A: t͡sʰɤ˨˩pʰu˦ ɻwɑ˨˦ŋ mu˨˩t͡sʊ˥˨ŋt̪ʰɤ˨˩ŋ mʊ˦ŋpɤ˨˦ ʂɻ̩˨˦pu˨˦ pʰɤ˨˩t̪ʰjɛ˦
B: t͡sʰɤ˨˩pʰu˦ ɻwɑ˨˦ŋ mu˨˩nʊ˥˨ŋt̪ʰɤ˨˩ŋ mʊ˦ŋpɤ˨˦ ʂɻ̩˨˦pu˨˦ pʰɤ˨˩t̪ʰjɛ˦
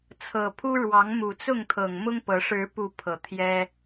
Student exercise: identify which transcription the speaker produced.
A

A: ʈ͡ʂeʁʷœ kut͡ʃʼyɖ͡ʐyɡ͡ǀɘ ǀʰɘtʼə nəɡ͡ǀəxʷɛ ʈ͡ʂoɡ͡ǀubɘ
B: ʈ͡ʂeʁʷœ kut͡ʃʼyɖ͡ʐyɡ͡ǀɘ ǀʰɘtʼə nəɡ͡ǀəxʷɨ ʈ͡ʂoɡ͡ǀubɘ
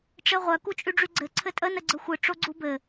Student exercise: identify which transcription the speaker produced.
B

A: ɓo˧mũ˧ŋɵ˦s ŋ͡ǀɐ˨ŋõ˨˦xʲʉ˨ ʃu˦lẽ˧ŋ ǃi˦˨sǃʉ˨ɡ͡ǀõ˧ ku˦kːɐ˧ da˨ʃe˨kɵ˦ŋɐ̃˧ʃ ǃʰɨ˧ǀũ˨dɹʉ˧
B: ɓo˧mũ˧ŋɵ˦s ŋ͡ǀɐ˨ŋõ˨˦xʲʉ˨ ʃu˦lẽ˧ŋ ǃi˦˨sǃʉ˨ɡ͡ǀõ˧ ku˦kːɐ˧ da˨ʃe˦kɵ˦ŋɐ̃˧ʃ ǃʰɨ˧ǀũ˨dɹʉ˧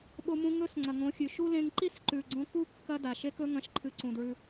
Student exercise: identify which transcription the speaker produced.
B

